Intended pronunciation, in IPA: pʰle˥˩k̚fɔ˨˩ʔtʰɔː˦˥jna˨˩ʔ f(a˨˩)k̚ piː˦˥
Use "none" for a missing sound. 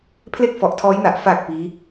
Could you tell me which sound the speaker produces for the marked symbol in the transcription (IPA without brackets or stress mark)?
a˨˩